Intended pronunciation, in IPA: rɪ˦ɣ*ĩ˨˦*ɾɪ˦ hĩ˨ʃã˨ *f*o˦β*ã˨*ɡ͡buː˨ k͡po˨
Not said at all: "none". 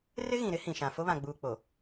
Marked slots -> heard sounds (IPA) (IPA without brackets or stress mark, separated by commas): ĩ˨, f, ã˨